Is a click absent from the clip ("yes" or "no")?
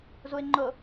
no